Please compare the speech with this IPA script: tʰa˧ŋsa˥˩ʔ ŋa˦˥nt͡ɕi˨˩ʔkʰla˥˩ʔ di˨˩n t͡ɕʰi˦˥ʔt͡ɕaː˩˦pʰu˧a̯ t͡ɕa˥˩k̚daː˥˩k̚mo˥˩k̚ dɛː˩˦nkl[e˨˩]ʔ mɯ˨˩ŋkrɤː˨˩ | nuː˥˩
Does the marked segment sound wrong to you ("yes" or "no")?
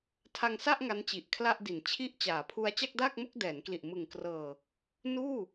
yes